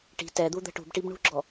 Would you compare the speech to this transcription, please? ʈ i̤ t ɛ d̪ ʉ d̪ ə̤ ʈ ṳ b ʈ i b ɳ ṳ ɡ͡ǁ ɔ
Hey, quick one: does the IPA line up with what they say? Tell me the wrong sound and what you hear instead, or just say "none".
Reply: ʉ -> u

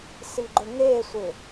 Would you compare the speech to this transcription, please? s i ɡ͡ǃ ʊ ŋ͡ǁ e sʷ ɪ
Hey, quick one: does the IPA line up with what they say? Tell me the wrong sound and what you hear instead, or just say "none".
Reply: ŋ͡ǁ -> ŋ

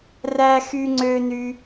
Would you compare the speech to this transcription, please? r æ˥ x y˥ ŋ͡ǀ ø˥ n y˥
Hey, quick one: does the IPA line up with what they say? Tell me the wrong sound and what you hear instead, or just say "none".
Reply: none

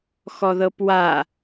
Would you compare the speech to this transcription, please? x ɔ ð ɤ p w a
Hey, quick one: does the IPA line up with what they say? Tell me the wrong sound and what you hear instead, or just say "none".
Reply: none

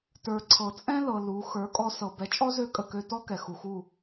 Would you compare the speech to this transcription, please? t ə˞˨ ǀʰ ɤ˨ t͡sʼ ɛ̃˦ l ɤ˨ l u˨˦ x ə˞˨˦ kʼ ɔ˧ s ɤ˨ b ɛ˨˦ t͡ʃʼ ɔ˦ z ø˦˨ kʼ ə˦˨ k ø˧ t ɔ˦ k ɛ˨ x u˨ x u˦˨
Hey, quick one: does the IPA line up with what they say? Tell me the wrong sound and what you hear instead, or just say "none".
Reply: none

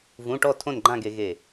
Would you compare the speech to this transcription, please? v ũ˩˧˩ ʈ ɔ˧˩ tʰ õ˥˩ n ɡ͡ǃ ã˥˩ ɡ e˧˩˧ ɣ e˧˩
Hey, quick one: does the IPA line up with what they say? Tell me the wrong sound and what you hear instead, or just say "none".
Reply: none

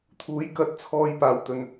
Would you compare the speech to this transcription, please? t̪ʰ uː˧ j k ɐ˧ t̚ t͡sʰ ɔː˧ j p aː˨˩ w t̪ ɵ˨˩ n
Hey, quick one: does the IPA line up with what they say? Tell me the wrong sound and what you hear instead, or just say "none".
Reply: uː˧ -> uː˨˧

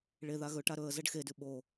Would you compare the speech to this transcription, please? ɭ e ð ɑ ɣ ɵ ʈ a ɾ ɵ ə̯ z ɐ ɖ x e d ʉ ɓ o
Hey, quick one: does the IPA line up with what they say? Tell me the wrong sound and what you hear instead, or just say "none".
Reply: ɑ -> a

